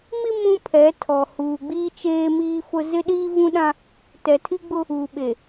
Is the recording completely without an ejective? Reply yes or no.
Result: yes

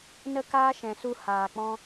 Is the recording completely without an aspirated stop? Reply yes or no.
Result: yes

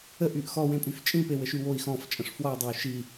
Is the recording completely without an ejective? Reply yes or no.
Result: no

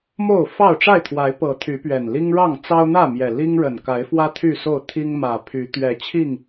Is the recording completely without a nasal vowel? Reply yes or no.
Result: yes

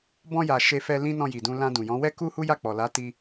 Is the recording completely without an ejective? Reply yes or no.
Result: yes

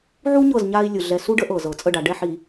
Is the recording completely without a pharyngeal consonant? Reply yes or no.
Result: no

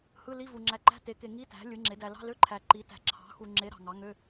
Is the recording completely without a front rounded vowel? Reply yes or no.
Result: no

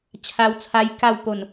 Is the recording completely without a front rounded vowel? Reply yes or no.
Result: yes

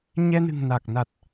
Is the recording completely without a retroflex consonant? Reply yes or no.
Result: yes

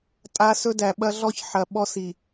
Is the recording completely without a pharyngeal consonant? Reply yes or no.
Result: no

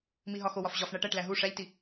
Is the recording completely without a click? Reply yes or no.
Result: yes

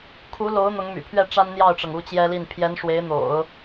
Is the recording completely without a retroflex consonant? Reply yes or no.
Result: no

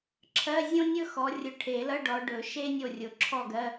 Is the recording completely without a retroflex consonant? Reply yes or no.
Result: no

